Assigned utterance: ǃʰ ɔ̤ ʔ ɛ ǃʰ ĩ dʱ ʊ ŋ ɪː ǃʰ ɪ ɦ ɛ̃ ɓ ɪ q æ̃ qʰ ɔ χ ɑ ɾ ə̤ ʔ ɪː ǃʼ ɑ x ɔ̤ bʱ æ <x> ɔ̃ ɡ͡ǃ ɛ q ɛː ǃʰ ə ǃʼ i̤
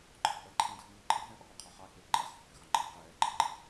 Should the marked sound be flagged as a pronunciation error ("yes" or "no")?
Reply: no